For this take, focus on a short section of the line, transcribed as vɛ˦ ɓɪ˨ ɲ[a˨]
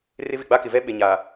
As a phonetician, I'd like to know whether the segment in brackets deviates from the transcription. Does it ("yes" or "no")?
no